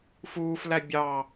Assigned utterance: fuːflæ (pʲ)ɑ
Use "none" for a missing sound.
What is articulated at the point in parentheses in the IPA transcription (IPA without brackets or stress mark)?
bʲ